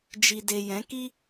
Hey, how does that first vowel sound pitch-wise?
low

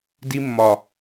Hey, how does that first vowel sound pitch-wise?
high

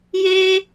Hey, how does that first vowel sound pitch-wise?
high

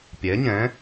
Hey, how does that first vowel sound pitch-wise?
rising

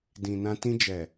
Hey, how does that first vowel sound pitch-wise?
low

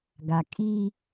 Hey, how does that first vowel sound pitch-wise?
low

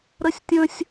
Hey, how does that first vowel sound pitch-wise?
high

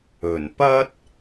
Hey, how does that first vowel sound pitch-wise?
low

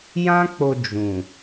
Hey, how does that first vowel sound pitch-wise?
high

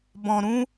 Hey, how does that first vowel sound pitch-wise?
low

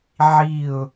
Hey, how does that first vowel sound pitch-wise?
falling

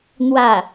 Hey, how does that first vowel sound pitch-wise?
falling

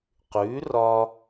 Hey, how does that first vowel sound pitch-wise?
rising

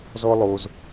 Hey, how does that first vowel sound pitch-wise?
high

